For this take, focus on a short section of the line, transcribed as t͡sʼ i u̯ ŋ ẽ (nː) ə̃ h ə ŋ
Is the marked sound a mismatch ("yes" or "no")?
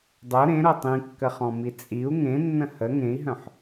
no